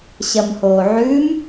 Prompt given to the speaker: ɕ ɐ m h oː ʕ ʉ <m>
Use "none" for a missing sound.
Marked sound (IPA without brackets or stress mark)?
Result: m